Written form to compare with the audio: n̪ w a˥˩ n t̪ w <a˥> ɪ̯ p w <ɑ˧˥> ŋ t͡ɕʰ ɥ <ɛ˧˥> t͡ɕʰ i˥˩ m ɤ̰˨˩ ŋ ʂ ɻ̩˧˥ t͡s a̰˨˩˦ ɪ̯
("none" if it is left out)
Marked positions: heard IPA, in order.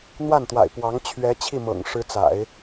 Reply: a̰˨˩, ɑ˧˥, ɛ˧˥

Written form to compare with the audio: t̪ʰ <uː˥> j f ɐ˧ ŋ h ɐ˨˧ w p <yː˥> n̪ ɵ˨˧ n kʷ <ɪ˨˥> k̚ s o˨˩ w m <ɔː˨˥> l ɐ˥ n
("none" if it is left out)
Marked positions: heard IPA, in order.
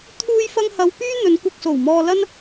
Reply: uː˧, yː˥, ɪ˧, ɔː˧

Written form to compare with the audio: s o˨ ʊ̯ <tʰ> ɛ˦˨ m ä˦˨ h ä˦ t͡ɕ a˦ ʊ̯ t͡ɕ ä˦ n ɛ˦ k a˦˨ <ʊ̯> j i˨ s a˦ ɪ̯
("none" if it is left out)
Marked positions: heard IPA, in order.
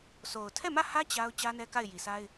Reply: tʰ, ɪ̯

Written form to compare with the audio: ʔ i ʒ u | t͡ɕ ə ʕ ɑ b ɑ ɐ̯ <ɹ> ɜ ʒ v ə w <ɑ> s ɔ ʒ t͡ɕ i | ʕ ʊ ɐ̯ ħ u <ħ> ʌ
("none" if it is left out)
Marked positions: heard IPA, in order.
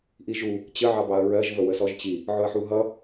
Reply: ɹ, ə, ɦ

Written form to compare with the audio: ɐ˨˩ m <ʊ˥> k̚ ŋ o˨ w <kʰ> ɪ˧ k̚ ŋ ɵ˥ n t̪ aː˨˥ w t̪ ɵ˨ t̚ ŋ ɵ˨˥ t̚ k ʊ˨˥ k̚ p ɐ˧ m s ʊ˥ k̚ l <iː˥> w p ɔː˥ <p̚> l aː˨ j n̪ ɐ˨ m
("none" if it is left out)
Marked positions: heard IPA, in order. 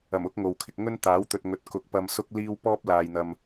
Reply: ʊ˥, kʰ, iː˥, p̚

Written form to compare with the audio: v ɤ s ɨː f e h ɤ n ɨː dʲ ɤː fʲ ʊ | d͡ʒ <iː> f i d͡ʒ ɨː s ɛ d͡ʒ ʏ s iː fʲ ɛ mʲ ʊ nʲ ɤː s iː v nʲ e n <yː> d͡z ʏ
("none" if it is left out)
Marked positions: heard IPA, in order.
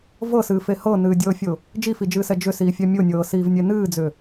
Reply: i, ɨː

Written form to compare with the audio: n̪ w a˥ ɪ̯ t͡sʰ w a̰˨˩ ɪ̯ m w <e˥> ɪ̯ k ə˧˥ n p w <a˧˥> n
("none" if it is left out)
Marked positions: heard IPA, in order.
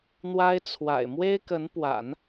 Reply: e˥, a̰˨˩˦

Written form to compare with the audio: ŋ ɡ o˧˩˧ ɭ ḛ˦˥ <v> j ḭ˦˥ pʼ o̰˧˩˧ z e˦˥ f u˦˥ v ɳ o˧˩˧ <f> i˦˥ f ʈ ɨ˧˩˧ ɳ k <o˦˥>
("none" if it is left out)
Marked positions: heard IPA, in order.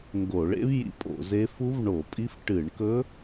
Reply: v, pʼ, ɵ˦˥

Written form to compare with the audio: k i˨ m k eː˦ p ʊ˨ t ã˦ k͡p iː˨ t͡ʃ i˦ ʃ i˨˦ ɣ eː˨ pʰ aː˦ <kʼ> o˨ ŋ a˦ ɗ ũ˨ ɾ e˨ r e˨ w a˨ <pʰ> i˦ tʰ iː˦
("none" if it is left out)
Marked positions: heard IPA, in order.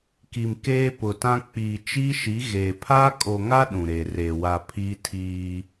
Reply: kʼ, pʰ

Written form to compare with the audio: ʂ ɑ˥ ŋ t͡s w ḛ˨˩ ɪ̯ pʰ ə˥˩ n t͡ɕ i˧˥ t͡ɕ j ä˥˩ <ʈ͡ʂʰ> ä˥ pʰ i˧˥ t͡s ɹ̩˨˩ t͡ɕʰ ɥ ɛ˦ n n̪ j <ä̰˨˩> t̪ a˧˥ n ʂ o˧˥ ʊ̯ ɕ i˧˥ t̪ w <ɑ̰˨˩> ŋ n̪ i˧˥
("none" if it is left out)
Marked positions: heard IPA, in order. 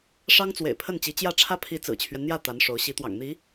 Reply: ʈ͡ʂʰ, ä˥˩, ɑ̰˨˩

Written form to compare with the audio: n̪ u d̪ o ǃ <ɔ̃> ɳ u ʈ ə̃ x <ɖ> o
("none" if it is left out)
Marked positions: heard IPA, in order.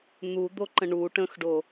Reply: ə̃, ɖ

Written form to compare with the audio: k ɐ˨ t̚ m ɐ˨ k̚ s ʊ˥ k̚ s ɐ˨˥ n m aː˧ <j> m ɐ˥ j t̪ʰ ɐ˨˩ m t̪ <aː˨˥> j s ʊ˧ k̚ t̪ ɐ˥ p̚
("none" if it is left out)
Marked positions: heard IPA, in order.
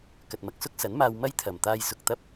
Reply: w, aː˧

